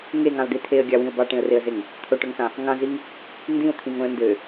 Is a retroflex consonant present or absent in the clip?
present